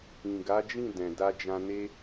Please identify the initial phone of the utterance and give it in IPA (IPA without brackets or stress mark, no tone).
ĩ